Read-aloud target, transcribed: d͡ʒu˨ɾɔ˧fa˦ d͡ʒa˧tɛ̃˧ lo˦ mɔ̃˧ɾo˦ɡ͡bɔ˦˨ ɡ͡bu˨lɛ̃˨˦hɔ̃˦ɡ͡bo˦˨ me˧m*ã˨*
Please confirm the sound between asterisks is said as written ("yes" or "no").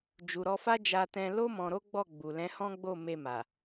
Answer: no